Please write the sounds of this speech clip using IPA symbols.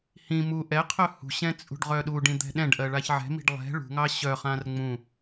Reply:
h ĩ m u ʔ ɛ qʰ œ h ṳ ɕ ɛ̃ t͡sʼ ṳ ɖ ʁ œ ɗ u ɖ ĩ d̪ ɛ̤ ɗ ɛ̃ ɖ ʔ ɜ ɭ a ç ʕ ɛ̤ m i̤ ɖ lˠ ɛ̤ ɭ ṳ ŋ ɑ ɕ œ χ ã r ŋ͡m ũ

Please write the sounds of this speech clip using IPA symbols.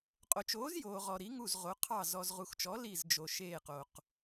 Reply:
qʼ o˨ t͡ʃ oː˨˥ z j oː˨ ʁ ɔ˨ ɾ i˨˥ ŋ u˦˨ z ʁ o˨˥ qʰ ɑ˦˨ z ɔ˨ z ʁ u˨ x t͡ʃ ɔ˨˥ l i˦˨ z d͡ʒ o˨ ʃ eː˦˨ q o˨ q

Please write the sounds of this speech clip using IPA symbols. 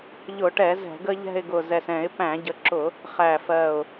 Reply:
ʎ ʊ˧˩˧ ʈ ɛ˧˩˧ z ɛ̤˧˩˧ ɡ ə˦ ʎ ɛ̤˦˨ ɪ̯ ɡ ʊ˨˩ z ɛ˨˩ s ɛ̃˧˩˧ ɪ̯ p æ̃˧˩˧ ɟ ə˩˥ ǁ ʊ˧˩˧ | χ æ˨˩ f ɜ˨˩ ʊ̯

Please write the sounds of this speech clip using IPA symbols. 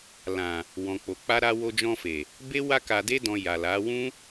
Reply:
l ã˨ | w ɔ̃˨ k͡p o˨ k͡p a˧ ɾ a˧ w o˧ d͡ʒ ɔ̃˧ f e˨ | b e˦ w a˧ k a˨ d e˧ d ɔ̃˨ j a˨ l a˨˦ w ũ˦

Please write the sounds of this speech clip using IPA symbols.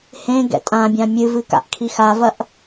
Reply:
h ẽ ɡ ɛ̰ tʼ ã bʲ ã mʲ ɨ v ɨ k a̰ ʔ kʰ i x a v ɐ ʔ

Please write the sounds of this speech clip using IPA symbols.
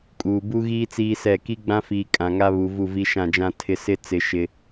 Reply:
kʼ uː˨ b u˦ ɣ iː˦ t͡s iː˦ s ɛ˦˨ k i˦ ɡ͡b ã˦ f iː˨ kʼ ã˨ ŋ a˦ β u˨ v u˦˨ v i˦ ʃ ã˦˨ d͡ʒ ã˦ tʰ ɪ˦ s ɪ˦ t͡s ɪ˨ ʃ ɪ˦

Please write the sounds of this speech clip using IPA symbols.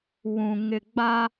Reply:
w ũ˨ ŋ ɪ˨ ɡ͡b a˦

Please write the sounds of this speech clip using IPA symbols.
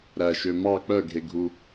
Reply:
ɾ æ ʃ ø m ɑ k͡p œ ɡʱ e ɡʱ u

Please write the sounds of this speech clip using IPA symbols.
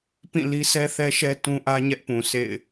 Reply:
p ĩ˦˨ l i˦ sʰ ɛ˦ θ ɛ˦ ʃ ɛ˦ t ũ˦ ʔ ä˦ ɲ ɛ˦ ʔ p ũ˨ sʰ ḛ˦˨ ɪ̯

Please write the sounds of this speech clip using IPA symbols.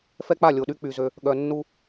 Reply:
f ɛ˦ k͡p a˦˨ lʲ o˨ ɗ y˦ k͡p y˨ z ø˦ | ɠ œ˨ nː u˦

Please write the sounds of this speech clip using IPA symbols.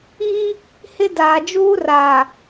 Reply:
iː˦ | h ɪ˦ d aː˨ d͡ʒ uː˦ r aː˨

